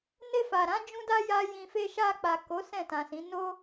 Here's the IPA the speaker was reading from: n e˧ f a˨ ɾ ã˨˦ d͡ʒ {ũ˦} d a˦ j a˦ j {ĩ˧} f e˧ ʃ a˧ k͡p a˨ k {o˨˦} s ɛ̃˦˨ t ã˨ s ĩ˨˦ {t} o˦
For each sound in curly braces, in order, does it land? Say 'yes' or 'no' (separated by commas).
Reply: yes, yes, yes, no